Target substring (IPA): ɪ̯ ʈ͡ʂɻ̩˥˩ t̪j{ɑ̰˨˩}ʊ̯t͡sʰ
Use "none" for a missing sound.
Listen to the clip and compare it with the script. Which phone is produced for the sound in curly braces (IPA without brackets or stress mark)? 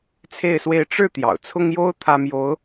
ɑ̰˨˩